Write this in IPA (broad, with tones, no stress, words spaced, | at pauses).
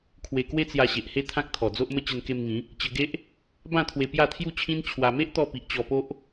kʰwe˧ kwe˦t͡sja˧ɕe˨ʔhe˦ t̪ʰã˦k̚t̪ʰɔ˨˩d͡zo˦ʔmə˦ t͡ɕə˧nke˧mŋĩ˨˦ | t͡ɕə˧ɡe˦ʔ | bã˥˧t̪ʰwe˧ pja˥˧t̪ʰju˥˧t͡ɕʰĩ˦n t͡ɕʰwa˧ me˦ʔt̪ɔ˧pi˨ʔ t͡ɕɔ˧po˦ʔ